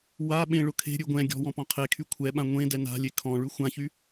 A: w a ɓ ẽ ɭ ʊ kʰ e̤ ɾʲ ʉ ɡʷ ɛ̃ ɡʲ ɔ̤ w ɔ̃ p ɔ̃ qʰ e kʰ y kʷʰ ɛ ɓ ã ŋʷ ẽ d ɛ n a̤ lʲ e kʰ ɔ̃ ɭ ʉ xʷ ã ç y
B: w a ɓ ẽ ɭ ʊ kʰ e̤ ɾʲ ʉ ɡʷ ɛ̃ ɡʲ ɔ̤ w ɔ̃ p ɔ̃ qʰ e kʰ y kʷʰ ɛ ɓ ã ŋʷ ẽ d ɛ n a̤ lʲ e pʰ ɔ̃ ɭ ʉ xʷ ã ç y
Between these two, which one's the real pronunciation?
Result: A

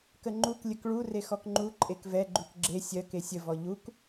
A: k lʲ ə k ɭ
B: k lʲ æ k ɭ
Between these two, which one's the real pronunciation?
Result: A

